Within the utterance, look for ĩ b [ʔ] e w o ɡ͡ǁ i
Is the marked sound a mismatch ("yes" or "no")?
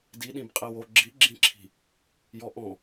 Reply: yes